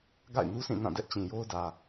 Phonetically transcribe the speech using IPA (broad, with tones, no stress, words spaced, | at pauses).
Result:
ɡa̰˦˨ɪ̯nu˦sĩ˦˨ nã˦˨dɛ˦ʔt͡ɕĩ˨jo˦ʊ̯ dä˨